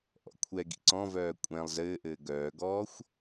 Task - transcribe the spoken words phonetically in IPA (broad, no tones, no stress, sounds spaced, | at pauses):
ʔ ɔ̰ kʷʰ ɛ ɡ ḭ ǀ ɔ̃ v œː kʷʼ ɛ̃ lˠ z ɘː ʔ ɘː ɡ œː ɡ ɔː xʷ